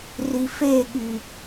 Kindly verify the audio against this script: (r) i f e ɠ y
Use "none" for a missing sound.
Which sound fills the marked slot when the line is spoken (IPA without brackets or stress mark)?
r